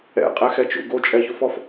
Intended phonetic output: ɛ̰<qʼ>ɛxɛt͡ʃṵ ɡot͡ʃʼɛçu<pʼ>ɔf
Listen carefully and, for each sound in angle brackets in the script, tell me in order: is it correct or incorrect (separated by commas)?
correct, incorrect